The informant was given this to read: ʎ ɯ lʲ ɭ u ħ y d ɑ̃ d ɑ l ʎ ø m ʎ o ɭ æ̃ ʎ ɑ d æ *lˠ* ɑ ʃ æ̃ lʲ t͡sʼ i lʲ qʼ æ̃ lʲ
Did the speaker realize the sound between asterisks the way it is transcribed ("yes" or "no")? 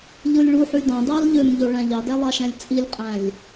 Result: yes